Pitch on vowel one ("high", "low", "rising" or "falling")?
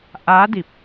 rising